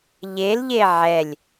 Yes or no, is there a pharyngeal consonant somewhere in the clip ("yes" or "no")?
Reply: yes